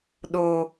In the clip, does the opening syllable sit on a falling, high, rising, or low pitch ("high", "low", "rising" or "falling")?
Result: low